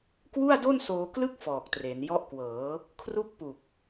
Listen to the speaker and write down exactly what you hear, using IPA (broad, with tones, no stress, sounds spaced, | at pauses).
k w u˥˩ a̯ d o˥˩ n s oː˧ k l ɯ˥˩ k̚ f ɔː˨˩ k̚ t r e˩˦ n j ɔ˦˥ ʔ k w ɤː˩˦ | kʰ r u˥˩ k̚ p u˨˩ k̚